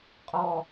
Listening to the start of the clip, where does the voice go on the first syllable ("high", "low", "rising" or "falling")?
low